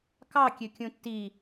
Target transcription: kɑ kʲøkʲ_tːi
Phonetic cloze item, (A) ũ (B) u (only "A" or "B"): A